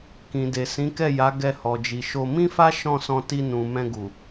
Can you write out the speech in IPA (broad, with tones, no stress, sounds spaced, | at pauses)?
k ĩ˨ d e˨ s ĩ˨˦ k ɛ˦˨ j a˨˦ ɡ ɛ˧ h ɔ˨ d͡ʒ i˨ ʃ o˧ m ĩ˦ f a˦ ʃ ɔ̃˦˨ s ɔ̃˧ t i˧ n ũ˨ m ɛ̃˧ ɡ u˨